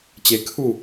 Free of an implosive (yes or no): yes